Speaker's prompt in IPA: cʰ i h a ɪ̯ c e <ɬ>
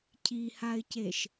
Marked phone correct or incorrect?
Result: incorrect